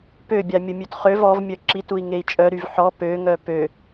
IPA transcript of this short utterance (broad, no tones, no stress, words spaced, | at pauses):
pøbʲa mʲəmʲøtχøv ɔvmʲœ ǁitui̯ ŋei̯t͡ʃʼœɾyv ħɔ pøŋœ pø